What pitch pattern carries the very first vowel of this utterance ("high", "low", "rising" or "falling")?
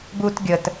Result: high